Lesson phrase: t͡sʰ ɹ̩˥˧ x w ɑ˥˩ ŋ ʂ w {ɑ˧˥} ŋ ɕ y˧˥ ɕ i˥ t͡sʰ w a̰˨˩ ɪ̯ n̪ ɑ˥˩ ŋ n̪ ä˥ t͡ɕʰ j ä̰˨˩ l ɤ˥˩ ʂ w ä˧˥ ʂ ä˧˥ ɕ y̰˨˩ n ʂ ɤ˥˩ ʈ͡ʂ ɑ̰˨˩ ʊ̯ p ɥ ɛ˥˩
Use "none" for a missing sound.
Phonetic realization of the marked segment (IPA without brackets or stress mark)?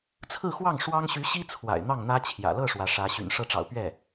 ɑ˥